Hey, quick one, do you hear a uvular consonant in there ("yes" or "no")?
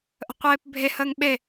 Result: yes